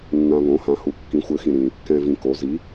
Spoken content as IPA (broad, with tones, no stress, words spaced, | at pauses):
nːã˨βõ˩˥ hã˩˥hu˩˥ kːĩ˩˥xʷɘ˩˥ xĩ˨ɾĩ˨ | kɛ̃˨ vĩ˨ko˩˥ zi˩˥